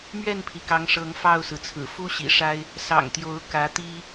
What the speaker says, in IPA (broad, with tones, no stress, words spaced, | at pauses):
mɥɛ˥˨npʰi˩ kɑ˨˦ŋʂɤ˨˦ŋ fɑ˥˨ʊ̯sɹ̩˩t͡sʰɹ̩˨˩ fu˦ɕḭ˨˩ʂa˦ɪ̯ | sɑ̰˨˩ŋt̪jo˨˦ʊ̯ kä˨˦t̪i˦